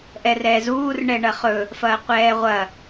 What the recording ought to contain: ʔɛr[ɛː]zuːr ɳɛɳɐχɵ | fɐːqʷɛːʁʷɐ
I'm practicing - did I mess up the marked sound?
no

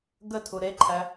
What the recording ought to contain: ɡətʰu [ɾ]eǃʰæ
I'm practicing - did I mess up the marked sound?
no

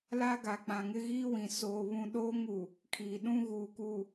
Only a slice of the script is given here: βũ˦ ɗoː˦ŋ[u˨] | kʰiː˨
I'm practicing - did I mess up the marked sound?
no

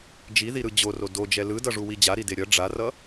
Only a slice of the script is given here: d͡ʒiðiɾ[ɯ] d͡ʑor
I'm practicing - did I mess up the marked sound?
no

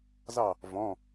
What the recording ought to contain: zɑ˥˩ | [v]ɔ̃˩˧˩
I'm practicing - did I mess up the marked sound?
no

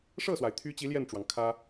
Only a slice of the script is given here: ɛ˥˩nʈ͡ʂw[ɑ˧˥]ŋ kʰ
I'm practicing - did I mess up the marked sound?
yes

